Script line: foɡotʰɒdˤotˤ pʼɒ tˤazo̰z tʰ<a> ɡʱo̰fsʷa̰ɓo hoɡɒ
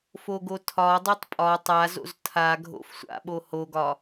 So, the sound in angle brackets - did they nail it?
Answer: yes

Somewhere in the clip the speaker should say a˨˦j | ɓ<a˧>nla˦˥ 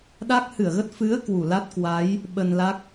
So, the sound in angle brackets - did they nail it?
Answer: no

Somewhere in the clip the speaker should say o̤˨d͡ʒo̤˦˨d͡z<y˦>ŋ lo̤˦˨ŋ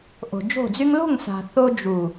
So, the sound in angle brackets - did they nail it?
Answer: yes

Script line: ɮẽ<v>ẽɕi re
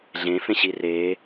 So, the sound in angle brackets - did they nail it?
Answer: no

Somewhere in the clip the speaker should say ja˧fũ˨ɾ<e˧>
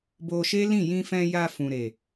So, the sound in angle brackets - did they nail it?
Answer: no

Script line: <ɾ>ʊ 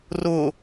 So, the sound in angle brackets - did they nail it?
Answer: no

